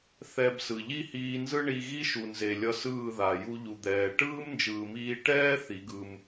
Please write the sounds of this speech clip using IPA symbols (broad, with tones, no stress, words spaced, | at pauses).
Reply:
θɛ˧bsɯ˨ ʎi˦hiː˧nzɯ˦ ɳi˧ɣi˦ʃu˨nze˨ lʲʌ˧sɯː˦˨ða˨ ju˧ʎu˨d̪ɛː˨ ʈɯː˦mnd͡ʒɯː˨miː˧ ʈɛː˦ θi˨˦ɡɯ˧m